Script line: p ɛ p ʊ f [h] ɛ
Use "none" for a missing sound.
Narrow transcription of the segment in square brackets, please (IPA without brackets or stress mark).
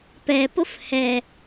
h